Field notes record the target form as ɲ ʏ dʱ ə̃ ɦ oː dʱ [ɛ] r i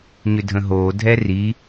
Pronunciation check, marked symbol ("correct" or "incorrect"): correct